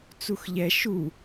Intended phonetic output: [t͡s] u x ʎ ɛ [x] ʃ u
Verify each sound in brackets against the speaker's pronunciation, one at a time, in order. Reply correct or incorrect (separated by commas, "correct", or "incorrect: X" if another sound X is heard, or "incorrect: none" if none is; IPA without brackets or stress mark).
correct, incorrect: none